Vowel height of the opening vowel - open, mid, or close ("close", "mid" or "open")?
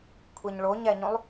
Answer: mid